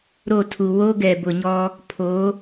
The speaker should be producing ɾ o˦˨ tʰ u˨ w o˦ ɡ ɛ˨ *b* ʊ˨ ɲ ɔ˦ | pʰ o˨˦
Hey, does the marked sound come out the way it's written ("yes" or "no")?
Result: yes